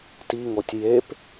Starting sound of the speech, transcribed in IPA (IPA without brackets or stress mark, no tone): t